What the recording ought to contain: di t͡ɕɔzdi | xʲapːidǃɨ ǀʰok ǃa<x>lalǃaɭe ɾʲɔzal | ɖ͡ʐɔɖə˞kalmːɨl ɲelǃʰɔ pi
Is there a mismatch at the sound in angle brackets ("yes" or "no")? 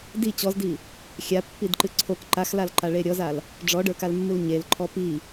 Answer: no